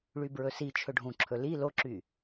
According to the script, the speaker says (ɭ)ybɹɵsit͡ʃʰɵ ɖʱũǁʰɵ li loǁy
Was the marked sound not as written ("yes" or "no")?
no